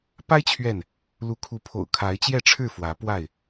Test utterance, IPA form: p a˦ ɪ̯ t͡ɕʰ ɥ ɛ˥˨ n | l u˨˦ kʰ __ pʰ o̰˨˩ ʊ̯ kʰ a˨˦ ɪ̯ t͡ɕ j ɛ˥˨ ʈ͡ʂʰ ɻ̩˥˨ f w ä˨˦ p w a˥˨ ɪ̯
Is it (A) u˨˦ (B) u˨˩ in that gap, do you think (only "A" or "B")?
A